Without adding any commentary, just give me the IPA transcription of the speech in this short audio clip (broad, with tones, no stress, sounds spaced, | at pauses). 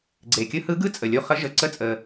ɡ͡ǀ e˩ kʲ ɯ˧˥ h ɯ˧˥ ɡ ɯ˧˥ t͡sʼ ə˩ lʲ u˧ χ ə˧˥ ʒ ə˩ ǀ ə˧˥ t͡sʼ ə˩